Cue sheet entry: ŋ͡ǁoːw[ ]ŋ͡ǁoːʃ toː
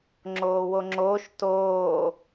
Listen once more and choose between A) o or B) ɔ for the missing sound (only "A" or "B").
A